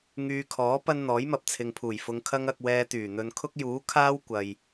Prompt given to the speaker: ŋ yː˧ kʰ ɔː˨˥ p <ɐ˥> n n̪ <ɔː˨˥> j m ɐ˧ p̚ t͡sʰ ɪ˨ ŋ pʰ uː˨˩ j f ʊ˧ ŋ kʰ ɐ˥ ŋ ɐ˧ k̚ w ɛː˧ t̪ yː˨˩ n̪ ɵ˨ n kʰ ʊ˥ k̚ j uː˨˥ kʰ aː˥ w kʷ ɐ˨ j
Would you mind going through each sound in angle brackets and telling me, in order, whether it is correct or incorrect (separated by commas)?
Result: correct, correct